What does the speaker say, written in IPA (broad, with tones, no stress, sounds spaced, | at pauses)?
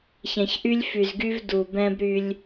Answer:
ç ɛ̃˨ ç ʔ y˦ lʲ f y˨ z ɡ y˦ v d u˨ b ɛ̃˦ b ɾ y˦ lʲ